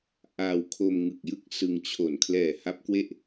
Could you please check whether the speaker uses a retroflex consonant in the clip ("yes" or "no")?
no